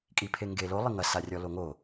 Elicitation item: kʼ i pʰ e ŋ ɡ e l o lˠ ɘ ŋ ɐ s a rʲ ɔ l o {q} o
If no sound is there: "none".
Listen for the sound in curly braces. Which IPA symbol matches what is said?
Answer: ŋ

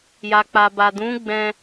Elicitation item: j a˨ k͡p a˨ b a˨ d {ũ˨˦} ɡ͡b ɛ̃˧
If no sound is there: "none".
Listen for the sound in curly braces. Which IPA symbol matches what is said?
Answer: ũ˨˦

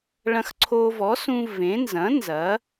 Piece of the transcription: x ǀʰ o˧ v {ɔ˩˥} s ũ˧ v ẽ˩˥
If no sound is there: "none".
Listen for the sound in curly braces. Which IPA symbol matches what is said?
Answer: ɔ˩˥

